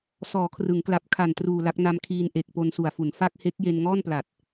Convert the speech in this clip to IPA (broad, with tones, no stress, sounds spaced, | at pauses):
s ɔː˩˦ kʰ r ɯ˩˦ ŋ k l a˨˩ p̚ kʰ a˨˩ n t r uː˨˩ l a˦˥ k̚ n a˧ m kʰ iː˧ n ʔ e˨˩ k̚ p o˧ n s u˨˩ a̯ f u˨˩ n f a˥˩ k̚ h e˦˥ k̚ j e˧ n ŋ ɔː˥˩ n p l a˨˩ t̚